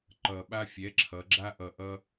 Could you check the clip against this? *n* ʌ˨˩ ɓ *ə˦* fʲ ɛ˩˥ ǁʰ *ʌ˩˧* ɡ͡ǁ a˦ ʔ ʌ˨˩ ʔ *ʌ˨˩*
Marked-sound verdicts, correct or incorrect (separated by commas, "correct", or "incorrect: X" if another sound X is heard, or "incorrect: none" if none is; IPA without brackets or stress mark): incorrect: ǃ, incorrect: a˦, correct, incorrect: ʌ˦